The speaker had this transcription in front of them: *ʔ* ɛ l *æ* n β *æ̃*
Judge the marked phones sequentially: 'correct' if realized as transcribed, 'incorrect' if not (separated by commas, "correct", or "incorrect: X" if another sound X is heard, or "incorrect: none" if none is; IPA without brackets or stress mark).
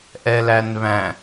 correct, correct, correct